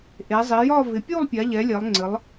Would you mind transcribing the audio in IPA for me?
ʔ e˩˧ zˤ i˩˧ j ɒ˥˧ v ɪ˩˧ pʲ u˥˧ lˠ pʲ a˩˧ ʎ ɛ˩˧ lʲ ɛ˩˧ lˠ ŋ͡ǀ ɘ˩˧ lˠ

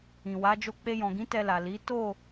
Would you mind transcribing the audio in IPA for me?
ĩ˨ w a˨˦ d͡ʒ o˦˨ k͡p e˧ j ɔ̃˨ ɡ ĩ˨˦ t ɛ˧ l a˨ l i˨˦ t o˦˨

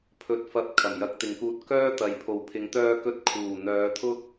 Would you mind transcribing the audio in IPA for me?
pʰ ɵ˧ t̚ f ɐ˧ p̚ kʰ ɐ˨˩ m j ɐ˧ k̚ t̪ ɪ˨ ŋ k uː˧ t̚ k œː˥ t̪ ɐ˨˥ j pʰ o˨ w pʰ ɪ˨˥ ŋ t̪ œː˧ k ɵ˧ t̚ kʰ uː˨˩ n̪ œː˨˧ t̪ʰ ʊ˥ k̚

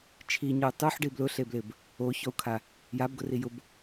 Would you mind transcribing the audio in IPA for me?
t͡ʃʰ i ɲ o u̯ tˤ u ħ ɖ i b l ʊ ɬ e b l ɪ b | o ç ɔ u̯ kʰ a | j a b ɡ ʊ r i j ʊ b

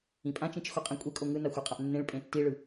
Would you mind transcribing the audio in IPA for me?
ĩ pʼ ã t͡ʃ ĩ t͡ʃ x o qʼ ẽ kʷʼ e kʼ o ŋ ɯ n a xʷ e qʼ a ʔ nː ẽ ɭ pʼ ẽ tː i ɭ ɯ

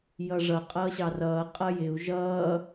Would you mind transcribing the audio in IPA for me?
j ʌ ʐ ʌ qʼ ʌː ɕ ɑ r ʌː qʼ ʌ j ɪ u̯ ʒ ʌː

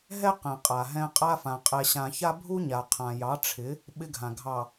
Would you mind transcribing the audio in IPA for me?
ɦ ɛ˦ q ɛ̃˨ qʼ a˨ ɦ ɛ̃˦ qʼ a˦ f ã˨ qʼ ɛ˨ ɕ ã˨ ç a˦ bʱ u˦ ɲ a˨ qʰ ã˨ j ɑ˨˦ ʈ͡ʂʰ ɪ˨˦ | ɓ ɪ˦ ɡʱ ã˨ ɡʱ ɑ˨

